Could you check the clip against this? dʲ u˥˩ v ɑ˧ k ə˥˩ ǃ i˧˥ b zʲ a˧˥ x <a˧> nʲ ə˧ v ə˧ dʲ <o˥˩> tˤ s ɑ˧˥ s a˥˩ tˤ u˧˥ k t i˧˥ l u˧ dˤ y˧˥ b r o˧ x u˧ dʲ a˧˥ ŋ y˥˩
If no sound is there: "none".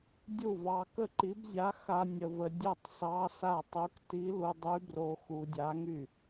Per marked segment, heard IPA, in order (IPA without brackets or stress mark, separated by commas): a˧, o˥˩